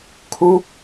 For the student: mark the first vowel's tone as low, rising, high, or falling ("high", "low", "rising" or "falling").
falling